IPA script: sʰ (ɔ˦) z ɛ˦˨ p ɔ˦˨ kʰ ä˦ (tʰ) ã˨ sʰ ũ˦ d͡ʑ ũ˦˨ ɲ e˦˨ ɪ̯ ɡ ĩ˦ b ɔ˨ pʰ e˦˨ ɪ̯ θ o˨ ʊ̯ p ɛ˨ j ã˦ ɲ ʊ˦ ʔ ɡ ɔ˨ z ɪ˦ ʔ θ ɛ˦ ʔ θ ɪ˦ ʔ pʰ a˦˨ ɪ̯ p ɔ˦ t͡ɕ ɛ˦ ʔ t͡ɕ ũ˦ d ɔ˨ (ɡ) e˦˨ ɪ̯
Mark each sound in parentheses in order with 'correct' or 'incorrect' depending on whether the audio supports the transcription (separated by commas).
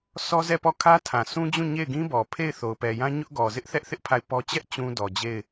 correct, correct, incorrect